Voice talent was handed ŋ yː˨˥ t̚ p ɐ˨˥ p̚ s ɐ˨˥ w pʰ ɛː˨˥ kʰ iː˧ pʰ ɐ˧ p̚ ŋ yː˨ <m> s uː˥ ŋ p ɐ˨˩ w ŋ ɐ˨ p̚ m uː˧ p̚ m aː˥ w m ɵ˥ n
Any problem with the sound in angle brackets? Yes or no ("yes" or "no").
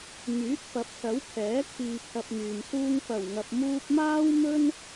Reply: no